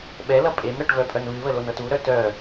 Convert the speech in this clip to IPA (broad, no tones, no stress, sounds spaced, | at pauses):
ɓ ɛ l ʌ pʼ e m ɾ ɤ ʈ v œ pʼ œ n β ɨ β ə l o n ɤ t u ɾ œ t œ